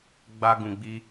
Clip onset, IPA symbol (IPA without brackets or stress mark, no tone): ɡ͡b